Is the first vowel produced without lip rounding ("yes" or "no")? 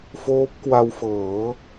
no